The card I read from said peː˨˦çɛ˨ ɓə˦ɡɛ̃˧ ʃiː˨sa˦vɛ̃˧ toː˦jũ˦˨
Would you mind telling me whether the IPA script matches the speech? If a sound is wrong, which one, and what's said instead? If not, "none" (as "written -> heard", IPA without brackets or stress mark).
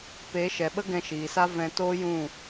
ç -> ʃ